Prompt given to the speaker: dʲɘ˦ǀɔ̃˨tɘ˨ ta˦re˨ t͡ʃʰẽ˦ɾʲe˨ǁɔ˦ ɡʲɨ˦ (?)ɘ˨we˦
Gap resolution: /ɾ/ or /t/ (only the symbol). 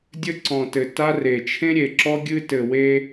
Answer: t